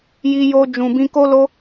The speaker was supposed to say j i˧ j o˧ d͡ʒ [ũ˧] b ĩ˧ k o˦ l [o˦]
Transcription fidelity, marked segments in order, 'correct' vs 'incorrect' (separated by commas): incorrect, correct